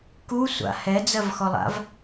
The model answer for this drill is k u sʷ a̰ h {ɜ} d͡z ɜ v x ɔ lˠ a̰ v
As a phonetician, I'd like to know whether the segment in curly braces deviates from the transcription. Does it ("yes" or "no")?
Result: yes